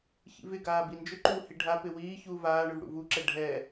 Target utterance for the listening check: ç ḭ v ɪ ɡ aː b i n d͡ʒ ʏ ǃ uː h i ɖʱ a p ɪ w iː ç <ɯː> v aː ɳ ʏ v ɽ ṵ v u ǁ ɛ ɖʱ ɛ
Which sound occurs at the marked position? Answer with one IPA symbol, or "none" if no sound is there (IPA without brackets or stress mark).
uː